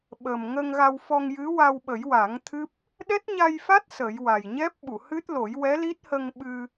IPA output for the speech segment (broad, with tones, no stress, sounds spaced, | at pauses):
ɓ əː˨˩ m ŋ ə˧ ŋ ɣ a˧ w f ɔ˧ ŋ j ɨ˧˥ w a˧ w ɓ ə˨˩˦ j w a˨˩˦ ŋ t̪ʰ ɨ˦˥ p̚ | ɗ ɛ˦˥ t̚ ɲ a˧ j f a˦˥ t̚ s ə˨˩˦ j w a˨˩ j ɲ ɛ˦˥ p̚ ɓ u˨˩˨ h ɨ˦˥ t̚ l o˨˩˦ j w ɛ˧˥ l i˦˥ t̚ h ə˧ ŋ ɓ ɨ˧